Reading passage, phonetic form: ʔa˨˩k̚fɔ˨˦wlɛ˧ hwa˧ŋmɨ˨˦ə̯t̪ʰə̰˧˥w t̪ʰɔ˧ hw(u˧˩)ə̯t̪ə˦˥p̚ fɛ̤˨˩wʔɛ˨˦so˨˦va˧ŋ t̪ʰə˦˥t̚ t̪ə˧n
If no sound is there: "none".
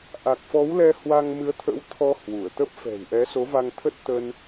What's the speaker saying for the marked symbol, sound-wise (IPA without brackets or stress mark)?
u˧˩